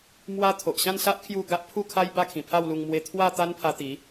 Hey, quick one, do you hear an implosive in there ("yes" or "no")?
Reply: no